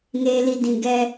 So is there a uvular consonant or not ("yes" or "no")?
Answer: no